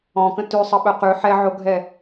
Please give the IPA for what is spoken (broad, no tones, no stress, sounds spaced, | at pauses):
ɔ̃ k ə̃ t ʉ sˤ ə ɓ œ q ʉ ħ ɛ ʕ o ɡʱ ɛ